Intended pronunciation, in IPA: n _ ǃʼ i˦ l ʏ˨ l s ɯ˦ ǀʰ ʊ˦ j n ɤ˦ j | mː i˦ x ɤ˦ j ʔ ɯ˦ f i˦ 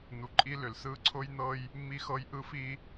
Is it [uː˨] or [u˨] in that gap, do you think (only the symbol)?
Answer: u˨